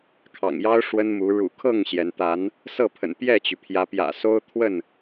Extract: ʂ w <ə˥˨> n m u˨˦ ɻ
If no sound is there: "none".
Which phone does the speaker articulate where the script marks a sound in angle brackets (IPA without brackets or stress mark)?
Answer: ə˦